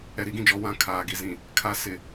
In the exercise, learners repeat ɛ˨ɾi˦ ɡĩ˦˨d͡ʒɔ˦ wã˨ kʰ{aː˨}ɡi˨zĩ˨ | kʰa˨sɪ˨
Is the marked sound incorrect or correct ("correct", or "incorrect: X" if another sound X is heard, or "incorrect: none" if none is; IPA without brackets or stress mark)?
correct